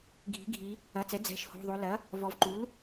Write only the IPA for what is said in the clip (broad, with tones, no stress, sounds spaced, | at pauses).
ɡʱ i̤˩˥ ɡʱ i˩˧ | ɐ˩˧˩ t͡s ɛ˩˥ d͡z ɛ̤˩˧˩ ʃ h o̤˩˧˩ ðˤ o˩˧ l ɐ˩˥ | v ɔ˩˧ v ǃ u˩˥ l